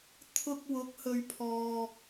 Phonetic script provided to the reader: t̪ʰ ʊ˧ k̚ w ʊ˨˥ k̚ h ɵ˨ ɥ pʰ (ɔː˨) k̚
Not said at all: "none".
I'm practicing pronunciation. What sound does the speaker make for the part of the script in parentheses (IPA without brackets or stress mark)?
ɔː˨